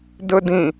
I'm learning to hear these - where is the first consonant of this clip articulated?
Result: tongue tip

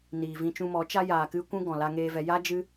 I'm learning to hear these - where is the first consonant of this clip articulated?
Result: tongue tip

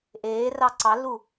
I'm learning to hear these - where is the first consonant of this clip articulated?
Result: throat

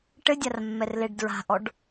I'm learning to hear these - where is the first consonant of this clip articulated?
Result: retroflex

